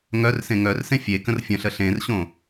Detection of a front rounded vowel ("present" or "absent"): present